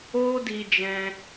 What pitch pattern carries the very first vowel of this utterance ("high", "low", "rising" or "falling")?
high